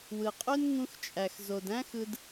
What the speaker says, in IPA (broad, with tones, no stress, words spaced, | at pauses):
wɯ˨qʼø˦nŋũ˧x t͡ʃʼæ˨x zo˨dæ̃˦xɯ˧d